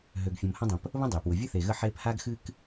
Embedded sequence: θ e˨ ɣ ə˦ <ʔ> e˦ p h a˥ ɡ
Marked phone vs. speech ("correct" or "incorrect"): incorrect